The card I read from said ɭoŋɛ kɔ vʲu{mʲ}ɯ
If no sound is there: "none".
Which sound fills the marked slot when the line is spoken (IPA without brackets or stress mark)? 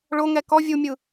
mʲ